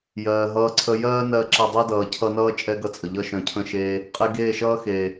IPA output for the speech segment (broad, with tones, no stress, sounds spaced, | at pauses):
j ɜː˨ ɦ ʌː˧ ǀʰ ə˧ j ɜː˦ n ɜ˧ ǁ ə˧ dˤ ɜ˦ d ʌː˨ cʰ ʌ˧ n ʌː˦ t͡ʃʼ ɛ˦ ɡ ʌ˧ t͡sʼ ə˨ ʎ ʌ˧ ʃ œ̃˨ cʰ ə̃˧ ʃ eː˧ | qʼ e˧ ɡ eː˦˨ ʃ ʌː˦ x eː˨